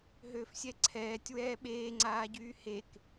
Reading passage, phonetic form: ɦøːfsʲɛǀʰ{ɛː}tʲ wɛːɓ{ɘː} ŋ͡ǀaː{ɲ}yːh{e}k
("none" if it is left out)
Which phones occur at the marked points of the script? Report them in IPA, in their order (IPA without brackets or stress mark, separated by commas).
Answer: ɛː, eː, ɟ, e